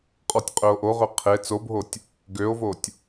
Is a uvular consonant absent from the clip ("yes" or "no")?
no